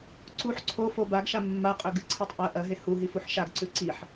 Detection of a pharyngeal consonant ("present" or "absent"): present